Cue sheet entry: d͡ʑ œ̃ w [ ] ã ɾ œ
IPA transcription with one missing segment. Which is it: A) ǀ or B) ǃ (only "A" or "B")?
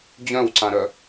A